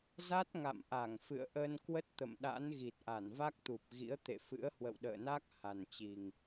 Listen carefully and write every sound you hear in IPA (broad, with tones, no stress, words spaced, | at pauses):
za˦˥t̚ŋa̰˧˨mʔa˧˩ŋfɨ̰˧˨ə̯ ʔə˧n kwə˦˥t̚t̪ə̰˧˨mɗa̰˧˥nɣi˨˩t̚ ʔa˧˩nva˦˥k̚t̪u˨˩p̚ɣḭ˧˥ə̯ t̪ḛ˧˨fɨ̰˧˥ə̯ hwə̰˧˨wɗə̰ː˧˨na˦˥k̚ ha˨˩nt͡ɕi˨˩ŋ